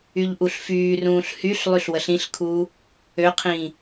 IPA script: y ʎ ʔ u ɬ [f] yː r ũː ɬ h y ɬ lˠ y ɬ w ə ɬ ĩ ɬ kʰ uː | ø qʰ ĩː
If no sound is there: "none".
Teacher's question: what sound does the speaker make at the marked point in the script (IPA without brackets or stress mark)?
f